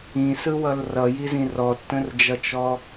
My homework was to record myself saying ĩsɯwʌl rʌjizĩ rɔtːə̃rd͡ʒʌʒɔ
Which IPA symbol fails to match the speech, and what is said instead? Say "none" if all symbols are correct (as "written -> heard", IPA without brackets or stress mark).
ʒ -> t͡ʃ